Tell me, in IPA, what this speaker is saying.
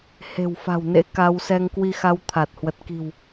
he̤˨˩wfa̤˨˩wnḛ˧˥ ka˧w sɛ˧ŋkwi˧xa˧w t̪ʰa˨˩t̚hwə˨˩t̚ki̤˨˩w

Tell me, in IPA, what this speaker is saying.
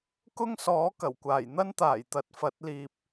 kʊ˥ŋsɔː˨˥ kɐ˨˩wkʷaː˨˩j n̪ɐ˥nt̪aː˨˩jt̪ɐ˨˥t̚ fɐ˨˥t̚liː˧p̚

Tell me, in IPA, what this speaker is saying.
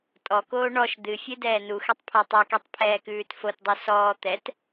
tʼɔkoː ɳɔʃ d̪ɨfʲɨ dɛːnuxɛtˤ pʰɔtˤɛkitˤ pʰɛːkʉːtfotdˤu sɔː t̪ɛt

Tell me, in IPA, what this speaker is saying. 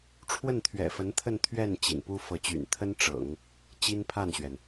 ʈ͡ʂʰwə˥˩nt̪ʰɥɛ̰˨˩fə˧˥nt̪ʰə˥˧n t̪ʰɥɛ˥˩n t͡ɕḭ˨˩npu˥ fɤ˧˥t͡ɕy̰˨˩n t̪ʰə˥n ʈ͡ʂɤ̰˨˩˦ŋ | t͡ɕi˥npʰa˥˩nɕɥɛ˩n

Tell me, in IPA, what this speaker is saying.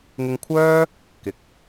ŋɪ˧ŋkʷʰœː˥ | kɪ˨k̚

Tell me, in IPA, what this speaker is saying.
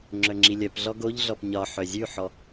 ŋ͡ǁœŋ͡ǁilʲœpɮɔ ɡoʎɮɔp ɲɒ ħœzʲʉħɔ

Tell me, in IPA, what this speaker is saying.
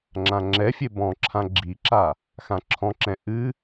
ŋ͡ǁãŋ͡ǁɛfʲe bɔ̃ǁʰã ɡ͡ǁiǁa | xãǁʰɔ̃ǁɛ̃ ʔɨ

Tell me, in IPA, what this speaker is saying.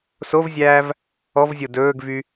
sovzʲæːv | ɔvzʲo dɵːɡvy

